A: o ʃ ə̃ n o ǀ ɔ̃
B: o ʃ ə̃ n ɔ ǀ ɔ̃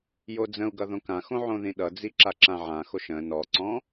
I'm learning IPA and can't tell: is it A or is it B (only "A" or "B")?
B